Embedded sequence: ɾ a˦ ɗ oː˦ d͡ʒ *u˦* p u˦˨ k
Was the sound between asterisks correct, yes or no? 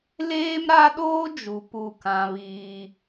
no